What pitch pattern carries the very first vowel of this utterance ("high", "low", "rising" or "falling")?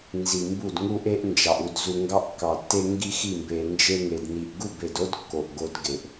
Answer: low